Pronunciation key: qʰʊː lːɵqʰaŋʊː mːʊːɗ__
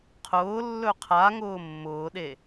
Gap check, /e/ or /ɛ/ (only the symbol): e